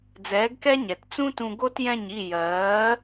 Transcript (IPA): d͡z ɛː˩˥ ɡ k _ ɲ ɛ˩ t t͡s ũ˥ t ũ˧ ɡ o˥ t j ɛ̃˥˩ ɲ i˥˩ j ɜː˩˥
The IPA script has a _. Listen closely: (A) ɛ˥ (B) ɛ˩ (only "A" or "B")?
A